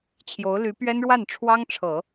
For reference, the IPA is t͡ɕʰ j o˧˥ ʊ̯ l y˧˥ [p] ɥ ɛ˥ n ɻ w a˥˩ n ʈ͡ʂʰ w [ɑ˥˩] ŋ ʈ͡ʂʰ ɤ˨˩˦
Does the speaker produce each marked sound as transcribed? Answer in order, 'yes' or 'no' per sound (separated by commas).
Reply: yes, no